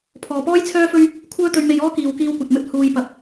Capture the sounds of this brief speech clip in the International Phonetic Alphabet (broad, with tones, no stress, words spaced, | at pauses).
pʰɔː˨pɔː˥j t͡sʰœː˥fɵ˥ɥ | kʷʰœː˥t̪ɵ˧ɥme˧jɔː˥ kiː˨wkiː˧wkʷɐ˨t̚mɵ˥t̚ huː˧jpɐ˧p̚